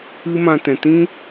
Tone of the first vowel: high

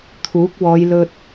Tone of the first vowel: rising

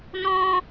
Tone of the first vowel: high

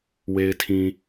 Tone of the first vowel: low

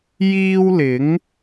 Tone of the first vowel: high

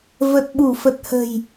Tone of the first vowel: low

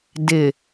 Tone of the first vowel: low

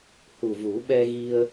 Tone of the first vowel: low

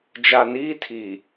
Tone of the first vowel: low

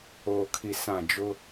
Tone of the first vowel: low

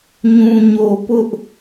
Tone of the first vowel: low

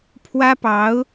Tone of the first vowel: high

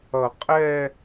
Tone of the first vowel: low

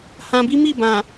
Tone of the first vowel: low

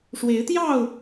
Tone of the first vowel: rising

